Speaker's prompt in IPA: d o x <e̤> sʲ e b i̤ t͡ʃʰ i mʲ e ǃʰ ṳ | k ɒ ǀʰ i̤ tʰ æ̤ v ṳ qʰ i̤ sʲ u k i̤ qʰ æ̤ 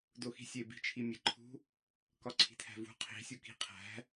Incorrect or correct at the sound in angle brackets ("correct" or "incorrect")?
incorrect